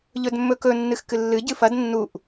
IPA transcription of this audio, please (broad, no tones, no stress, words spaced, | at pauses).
ʎɵdmːɵkɵ nːɨxkɨlːɨ ɟɨfɐd nːuʔ